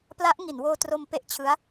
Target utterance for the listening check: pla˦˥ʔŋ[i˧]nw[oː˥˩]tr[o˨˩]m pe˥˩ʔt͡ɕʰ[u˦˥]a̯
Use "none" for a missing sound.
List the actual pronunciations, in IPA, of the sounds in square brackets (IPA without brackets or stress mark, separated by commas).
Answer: i˩˦, oː˧, o˧, ɯ˦˥